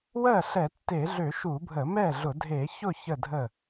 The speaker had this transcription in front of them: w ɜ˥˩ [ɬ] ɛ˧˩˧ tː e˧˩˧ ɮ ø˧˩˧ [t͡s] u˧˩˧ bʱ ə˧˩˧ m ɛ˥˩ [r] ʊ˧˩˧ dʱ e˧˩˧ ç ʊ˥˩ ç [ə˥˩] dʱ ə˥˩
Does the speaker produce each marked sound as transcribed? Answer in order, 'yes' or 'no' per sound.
yes, no, no, yes

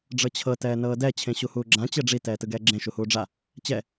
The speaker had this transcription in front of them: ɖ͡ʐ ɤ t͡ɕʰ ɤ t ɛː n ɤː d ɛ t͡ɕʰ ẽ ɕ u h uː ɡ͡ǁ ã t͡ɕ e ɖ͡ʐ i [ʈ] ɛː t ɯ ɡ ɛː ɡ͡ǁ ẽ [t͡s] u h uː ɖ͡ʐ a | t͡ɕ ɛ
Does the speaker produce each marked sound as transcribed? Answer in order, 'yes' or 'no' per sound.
no, no

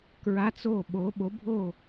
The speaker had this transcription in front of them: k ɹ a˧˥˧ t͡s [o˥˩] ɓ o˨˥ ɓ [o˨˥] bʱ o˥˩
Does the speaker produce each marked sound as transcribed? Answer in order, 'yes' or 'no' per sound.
yes, yes

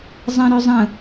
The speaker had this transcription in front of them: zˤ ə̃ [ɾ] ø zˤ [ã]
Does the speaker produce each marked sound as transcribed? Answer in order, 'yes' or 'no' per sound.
yes, no

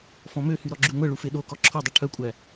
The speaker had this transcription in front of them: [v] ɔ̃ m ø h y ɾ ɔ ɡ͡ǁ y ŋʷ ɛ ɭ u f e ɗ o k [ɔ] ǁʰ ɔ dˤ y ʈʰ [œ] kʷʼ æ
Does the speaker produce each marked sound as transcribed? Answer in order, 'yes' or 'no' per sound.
no, yes, yes

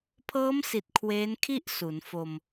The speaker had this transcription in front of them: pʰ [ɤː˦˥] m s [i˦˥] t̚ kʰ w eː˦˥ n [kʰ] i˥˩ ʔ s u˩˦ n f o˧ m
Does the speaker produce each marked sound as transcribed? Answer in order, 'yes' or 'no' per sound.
yes, no, yes

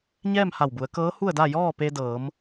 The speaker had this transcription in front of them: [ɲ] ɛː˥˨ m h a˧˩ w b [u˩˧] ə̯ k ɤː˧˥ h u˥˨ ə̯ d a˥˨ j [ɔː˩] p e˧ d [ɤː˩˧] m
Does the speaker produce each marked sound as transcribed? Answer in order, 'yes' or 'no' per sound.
yes, yes, no, yes

